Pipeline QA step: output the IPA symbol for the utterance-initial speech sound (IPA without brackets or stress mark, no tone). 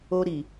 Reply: o